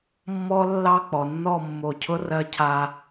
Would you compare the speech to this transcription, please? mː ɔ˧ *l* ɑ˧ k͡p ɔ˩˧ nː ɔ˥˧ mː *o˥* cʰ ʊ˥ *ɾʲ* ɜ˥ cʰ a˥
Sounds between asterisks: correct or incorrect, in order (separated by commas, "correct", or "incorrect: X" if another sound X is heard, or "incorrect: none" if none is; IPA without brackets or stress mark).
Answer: incorrect: lː, incorrect: o˧˩, incorrect: r